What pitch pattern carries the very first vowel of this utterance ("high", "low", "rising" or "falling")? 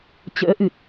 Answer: rising